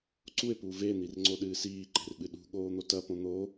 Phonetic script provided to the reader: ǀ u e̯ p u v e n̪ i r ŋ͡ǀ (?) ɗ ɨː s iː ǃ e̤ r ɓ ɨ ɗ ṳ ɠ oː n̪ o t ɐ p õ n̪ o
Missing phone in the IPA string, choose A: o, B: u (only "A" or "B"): A